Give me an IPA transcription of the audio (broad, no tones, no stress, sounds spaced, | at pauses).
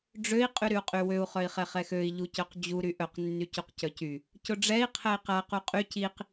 ɖ͡ʐ ø i̯ qʼ y ɾ y u̯ qʼ y w ø u̯ χ œ i̯ χ ɛ χ ɛ x ø i̯ ʎ u c œ q d͡ʑ u ɾ y ʔ œ q nː y c u q c œ c y | c ʊ ɖ͡ʐ ɛ i̯ qʰ ɛ i̯ q a q u qʼ y c i q